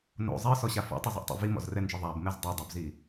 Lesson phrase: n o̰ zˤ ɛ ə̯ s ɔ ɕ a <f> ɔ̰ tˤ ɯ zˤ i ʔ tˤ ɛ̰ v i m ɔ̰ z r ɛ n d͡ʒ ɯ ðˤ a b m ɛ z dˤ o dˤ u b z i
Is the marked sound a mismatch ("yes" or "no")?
no